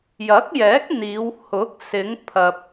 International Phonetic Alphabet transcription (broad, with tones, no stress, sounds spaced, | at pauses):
j ɐ˨˥ k̚ j ɛː˨˥ k̚ n̪ iː˨˧ w h ʊ˨˥ k̚ s ɪ˨˧ ŋ pʰ ɐ˨ p̚